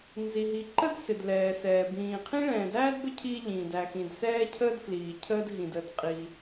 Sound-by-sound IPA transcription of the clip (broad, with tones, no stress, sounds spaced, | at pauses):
n z i˩ ɦ i˩ ǃ ə˥ d s ɪ˩ d l ɛː˩ s ɛː˩ b ĩː˩ qʰ ĩ˥ ɭ ɛ̃ː˩ d æː˥ d b ə˥ cʰ iː˥ ʎ ĩː˩ d æ˩ x ĩ˩ d s ɛː˥ cʰ əː˥ d f l iː˩ cʰ əː˥ d ɦ ĩ˩ d ə˩ d qʼ i˩